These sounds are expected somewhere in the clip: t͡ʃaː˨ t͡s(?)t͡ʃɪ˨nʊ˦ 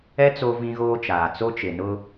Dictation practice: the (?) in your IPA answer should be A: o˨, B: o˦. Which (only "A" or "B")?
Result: B